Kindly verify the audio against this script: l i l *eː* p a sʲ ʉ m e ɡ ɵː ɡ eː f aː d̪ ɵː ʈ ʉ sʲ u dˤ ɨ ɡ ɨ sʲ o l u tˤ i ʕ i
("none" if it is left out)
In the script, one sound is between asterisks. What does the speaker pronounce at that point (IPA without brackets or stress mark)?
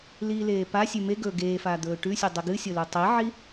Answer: eː